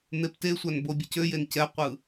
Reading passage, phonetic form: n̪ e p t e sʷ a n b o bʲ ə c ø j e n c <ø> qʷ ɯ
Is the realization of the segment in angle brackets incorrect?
yes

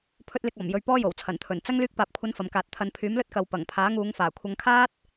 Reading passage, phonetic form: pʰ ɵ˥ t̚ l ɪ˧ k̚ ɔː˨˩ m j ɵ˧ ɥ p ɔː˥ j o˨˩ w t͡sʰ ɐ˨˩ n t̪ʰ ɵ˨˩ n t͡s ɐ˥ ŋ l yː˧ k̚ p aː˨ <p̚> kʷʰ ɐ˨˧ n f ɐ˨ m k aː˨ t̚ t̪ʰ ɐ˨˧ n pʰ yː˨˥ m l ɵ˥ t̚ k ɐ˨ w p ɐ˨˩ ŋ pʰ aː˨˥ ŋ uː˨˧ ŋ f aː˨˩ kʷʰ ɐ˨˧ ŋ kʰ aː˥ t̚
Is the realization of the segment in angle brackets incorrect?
no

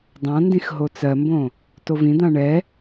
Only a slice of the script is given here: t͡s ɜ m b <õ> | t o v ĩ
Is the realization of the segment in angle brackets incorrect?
no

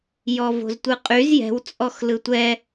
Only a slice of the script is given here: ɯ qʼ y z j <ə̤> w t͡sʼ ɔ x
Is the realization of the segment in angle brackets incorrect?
yes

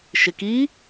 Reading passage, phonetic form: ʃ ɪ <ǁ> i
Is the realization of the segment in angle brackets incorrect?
yes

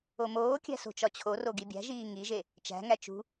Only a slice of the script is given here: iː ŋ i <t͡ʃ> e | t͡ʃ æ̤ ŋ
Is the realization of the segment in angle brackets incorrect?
yes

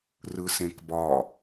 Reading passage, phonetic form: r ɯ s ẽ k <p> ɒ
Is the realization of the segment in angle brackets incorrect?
yes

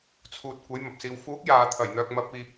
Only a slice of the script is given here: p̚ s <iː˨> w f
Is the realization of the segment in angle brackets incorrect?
no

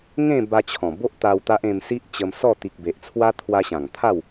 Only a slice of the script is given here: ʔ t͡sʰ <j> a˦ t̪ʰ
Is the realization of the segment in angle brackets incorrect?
yes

